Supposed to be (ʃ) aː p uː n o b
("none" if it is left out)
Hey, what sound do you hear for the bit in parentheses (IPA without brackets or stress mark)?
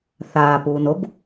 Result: θ